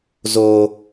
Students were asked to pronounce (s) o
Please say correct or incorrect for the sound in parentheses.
incorrect